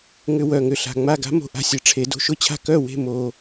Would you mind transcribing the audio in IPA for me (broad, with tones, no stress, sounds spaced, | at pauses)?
ŋ ʏ˧ w œ˨˩ ŋ ʏ˨˩ ɬ a̤˨˩ ŋ͡m a˥˩ ɡ a̤˦˥ m o̤˨˩ ʔ a̤˧ sʲ ɛ˩˧ ʈ͡ʂʰ e˩˧ d o̤˧ ʃ ʊ˦˥ t͡ɕʰ a̤˥˩ k œ˥˩ w e̤˥˩ m o˨˩